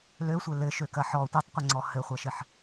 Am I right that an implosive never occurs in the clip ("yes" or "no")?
yes